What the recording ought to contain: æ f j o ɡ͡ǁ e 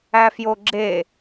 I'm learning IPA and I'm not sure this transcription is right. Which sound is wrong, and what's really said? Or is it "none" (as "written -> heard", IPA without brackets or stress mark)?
none